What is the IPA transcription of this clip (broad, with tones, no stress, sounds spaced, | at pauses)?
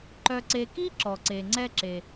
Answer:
ǃ œ˨ ǀ e˨ k i˥ ǁ ɔ˩ ǀ e˩ ŋ͡ǀ ɛ˦ ǁ e˩